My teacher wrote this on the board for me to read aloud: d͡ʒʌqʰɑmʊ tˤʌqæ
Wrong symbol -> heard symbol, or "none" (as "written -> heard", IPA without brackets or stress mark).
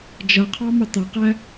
none